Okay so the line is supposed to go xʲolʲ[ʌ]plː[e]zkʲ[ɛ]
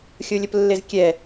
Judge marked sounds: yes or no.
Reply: no, yes, yes

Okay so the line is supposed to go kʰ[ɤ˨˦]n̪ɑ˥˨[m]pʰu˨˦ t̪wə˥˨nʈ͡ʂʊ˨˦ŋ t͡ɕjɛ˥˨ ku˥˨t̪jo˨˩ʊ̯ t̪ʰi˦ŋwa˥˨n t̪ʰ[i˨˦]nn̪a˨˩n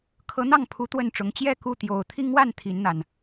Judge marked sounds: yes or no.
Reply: yes, no, yes

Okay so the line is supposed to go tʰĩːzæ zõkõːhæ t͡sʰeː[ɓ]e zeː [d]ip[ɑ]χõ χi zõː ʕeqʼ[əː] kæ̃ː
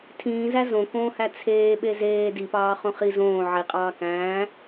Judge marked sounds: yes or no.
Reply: yes, yes, no, no

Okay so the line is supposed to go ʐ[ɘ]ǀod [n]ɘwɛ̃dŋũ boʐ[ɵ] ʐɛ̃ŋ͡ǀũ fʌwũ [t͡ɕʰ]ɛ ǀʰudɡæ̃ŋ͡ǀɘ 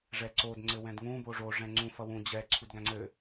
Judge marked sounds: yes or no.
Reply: no, no, no, no

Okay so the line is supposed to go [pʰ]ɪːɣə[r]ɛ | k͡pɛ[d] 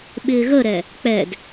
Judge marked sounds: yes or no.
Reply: no, no, yes

